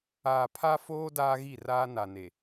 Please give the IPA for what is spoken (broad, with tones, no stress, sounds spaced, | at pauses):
aː˨ pʰ a˦ f oː˦ d aː˦ ɣ i˦˨ r aː˦ n a˨ n e˨